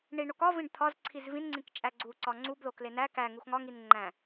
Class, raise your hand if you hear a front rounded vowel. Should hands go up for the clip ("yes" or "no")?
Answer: no